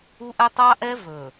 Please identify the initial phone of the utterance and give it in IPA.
u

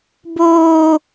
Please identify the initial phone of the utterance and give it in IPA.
b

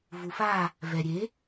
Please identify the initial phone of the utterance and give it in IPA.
v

